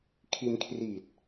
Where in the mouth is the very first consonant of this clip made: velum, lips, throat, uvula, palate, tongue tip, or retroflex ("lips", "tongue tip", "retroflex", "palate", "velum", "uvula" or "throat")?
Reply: velum